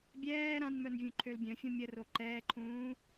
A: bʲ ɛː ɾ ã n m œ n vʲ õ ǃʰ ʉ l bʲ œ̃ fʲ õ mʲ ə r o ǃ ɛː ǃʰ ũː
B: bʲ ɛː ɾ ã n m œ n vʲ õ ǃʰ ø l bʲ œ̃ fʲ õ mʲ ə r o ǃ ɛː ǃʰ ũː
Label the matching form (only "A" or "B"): B